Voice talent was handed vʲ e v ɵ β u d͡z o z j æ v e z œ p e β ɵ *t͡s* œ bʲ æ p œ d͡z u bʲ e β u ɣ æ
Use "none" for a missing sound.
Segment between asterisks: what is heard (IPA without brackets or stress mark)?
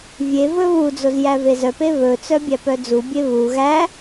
t͡s